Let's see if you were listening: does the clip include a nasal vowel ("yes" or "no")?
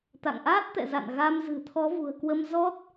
no